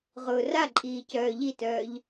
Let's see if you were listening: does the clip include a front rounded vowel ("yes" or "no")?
yes